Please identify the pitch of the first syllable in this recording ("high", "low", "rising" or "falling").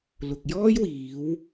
low